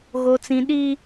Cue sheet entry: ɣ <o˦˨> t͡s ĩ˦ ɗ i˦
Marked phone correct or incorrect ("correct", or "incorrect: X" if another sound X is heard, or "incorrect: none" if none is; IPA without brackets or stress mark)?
incorrect: o˦